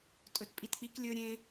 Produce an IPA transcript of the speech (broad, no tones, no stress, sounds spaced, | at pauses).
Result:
tʼ ɵ t pʼ i t k͡p i k lʲ ɵ ɾʲ ẽ